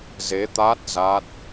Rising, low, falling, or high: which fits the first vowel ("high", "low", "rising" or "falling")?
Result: rising